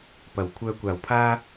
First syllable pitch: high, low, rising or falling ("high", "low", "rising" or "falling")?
low